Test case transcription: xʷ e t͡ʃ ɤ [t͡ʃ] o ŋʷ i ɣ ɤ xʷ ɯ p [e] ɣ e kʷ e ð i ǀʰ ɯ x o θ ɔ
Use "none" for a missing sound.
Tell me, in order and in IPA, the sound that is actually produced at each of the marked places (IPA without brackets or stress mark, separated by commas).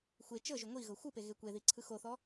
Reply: ʒ, e